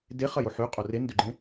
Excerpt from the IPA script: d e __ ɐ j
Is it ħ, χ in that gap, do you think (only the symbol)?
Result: χ